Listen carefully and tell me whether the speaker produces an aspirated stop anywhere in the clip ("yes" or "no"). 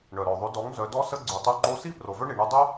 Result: no